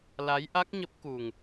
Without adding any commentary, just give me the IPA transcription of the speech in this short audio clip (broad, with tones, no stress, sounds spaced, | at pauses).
l a˨˦ j ʔ a˦˥ k̚ ɲ ə˦˥ p̚ k u˨˩ ŋ